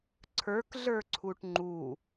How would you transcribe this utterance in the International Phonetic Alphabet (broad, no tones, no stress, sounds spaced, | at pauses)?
ǀʰ ə˞ k ɮ ə˞ ǀʰ u ʈ ŋ͡ǃ u